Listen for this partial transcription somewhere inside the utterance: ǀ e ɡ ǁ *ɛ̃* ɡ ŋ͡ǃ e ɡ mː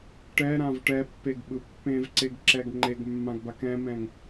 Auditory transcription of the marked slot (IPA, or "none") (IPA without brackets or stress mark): ɛ